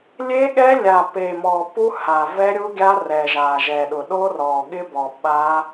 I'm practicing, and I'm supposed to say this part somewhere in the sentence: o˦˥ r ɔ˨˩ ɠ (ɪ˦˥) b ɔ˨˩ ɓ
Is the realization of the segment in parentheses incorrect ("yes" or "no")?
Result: no